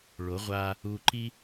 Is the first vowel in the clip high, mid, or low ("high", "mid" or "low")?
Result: mid